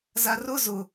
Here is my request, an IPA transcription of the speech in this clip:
z a r ʊ z ʊ

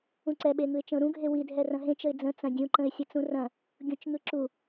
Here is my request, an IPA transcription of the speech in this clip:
ũ ǀ ɛ ɓ e ŋ ɯ ɪ̯ t͡ʃ ə̃ ʊ̯ ɾ ũ ɡʱ e w i dʱ ɛ r ɐ̃ ɦ ẽ t͡ʃ ə ɪ̯ d͡z ə̃ t͡s ɐ̃ dʲ ũ ǃ ə̃ ɪ̯ sʲ ɐ t͡s ũ r ɐ̃ | ɡʲ ũ t͡ʃ ŋ ɯ ǁ u

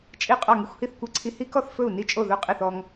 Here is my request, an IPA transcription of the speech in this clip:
t͡ʃʼ i˥˨ qʼ ɔ˥˨ ŋ i˦ xʷ h i˥˨ θ kʷ e˥˨ ǀʰ i˦ h i˦ k ɔ˥˨ θ f ɵ˥˨ u̯ n i˦ t͡ʃʼ o˥˨ ð ɵ˥˨ qʼ i˥˨ θ ɔ˦ ŋ

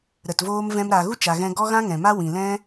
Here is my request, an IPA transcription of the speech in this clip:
ɾ ə˨ t v oː˦ m v ɛ̃˧ m ɾ a˨ ɣ u˦ t͡ʃ a˨ ɣ ɛ̃˧ ɡ ɔ˦ ɣ ã˦ ŋ ɛ̃˨ m a˦ w ĩ˨ l ɛ̃˦

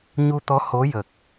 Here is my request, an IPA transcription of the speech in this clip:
ɲ u˧ t̪ ɔ˧˥ h o˧˥ j ə˨˩ k̚

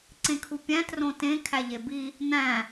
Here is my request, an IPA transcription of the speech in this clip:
ǀ ẽ kʰ u pʲ æ̃ t r õ t ẽ kʰ æ ʎ e b i | n̪ æ̃

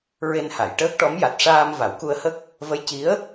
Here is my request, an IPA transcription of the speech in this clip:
ɹ e˧ n h a˨˩˨ j ʈ əː˦˥ k̚ ʈ ɔ˧˥ m j a˨˩ t̚ ʂ aː˧ m v a˨˩˦ w k u˧ ə̯ h ə˦˥ k̚ | v ə˧˥ j c i˧˥ ə̯

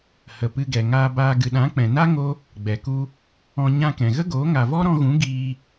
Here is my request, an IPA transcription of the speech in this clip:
h ə˨ p ɨ˧ ɡ ɛ˨ ŋ aː˧ b aː˧ ɡ ɨ˨ ɗ ã˨˦ k͡p ɛ̃˨ n a˦ ŋ o˦ | ɡ͡b ɛ˨ k u˦ | ɔ̃˧ ɲ ã˧ k ɛ̃˨ ɣ ə˦ ɡ oː˨˦ ŋ a˨ v ɔ˦ ɾ ɔ̃˧ ɣ ũ˨˦ ɡ iː˧

